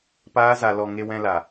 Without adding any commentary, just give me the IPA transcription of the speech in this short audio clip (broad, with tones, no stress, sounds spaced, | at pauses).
p aː˦ z a˧ l ɔ˧ ŋ e˧ w ɛ̃˧ l a˨